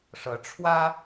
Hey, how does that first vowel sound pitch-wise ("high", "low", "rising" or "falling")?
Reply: rising